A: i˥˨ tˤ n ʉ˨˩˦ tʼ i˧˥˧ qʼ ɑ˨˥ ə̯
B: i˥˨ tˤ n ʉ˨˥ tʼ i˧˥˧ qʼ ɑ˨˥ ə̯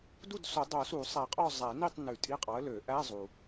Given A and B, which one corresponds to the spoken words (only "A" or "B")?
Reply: A